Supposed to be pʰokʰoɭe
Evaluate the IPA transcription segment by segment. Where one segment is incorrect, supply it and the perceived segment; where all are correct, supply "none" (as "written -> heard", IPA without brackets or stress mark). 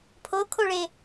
none